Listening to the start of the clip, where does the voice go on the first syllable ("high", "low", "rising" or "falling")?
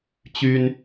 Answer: high